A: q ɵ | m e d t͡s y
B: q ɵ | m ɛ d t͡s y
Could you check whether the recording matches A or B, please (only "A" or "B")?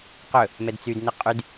B